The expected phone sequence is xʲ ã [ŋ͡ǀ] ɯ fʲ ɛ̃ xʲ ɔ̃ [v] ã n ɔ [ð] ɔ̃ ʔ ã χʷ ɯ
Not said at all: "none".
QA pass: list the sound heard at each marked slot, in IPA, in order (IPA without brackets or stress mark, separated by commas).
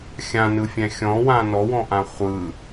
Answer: n, w, w